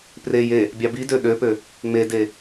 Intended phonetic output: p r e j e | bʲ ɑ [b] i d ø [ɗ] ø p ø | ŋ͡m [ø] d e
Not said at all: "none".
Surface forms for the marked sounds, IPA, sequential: b, ɗ, e

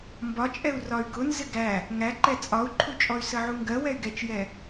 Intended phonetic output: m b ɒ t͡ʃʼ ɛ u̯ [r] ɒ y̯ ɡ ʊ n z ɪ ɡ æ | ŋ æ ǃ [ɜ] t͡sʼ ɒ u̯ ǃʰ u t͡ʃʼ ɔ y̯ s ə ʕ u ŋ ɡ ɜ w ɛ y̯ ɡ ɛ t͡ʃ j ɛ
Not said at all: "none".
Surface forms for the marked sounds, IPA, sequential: r, ɛ

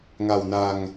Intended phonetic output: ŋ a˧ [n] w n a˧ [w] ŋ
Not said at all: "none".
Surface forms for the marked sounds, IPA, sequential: none, none

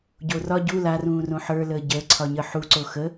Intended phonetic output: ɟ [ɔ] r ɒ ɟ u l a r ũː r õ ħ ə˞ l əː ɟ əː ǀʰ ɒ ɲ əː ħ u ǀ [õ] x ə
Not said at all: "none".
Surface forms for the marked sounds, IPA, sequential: o, o

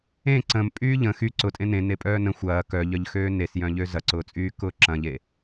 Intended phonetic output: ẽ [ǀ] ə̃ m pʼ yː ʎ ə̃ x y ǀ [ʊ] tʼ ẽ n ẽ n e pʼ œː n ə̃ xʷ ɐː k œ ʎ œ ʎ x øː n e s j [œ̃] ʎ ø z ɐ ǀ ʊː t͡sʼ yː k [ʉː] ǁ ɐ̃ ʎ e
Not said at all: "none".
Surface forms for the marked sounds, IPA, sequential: ǀ, ʊ, œ̃, ʊː

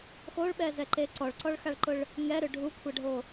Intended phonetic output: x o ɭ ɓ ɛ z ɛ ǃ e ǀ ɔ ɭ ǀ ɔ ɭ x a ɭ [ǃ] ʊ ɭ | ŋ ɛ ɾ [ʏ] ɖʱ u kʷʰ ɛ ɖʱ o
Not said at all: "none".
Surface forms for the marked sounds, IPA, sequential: ǃ, ʏ

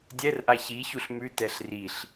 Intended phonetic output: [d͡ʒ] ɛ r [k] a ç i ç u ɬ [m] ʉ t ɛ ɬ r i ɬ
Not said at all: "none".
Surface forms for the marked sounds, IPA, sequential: dʲ, ʔ, m

